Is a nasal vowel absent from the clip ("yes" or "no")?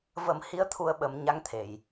yes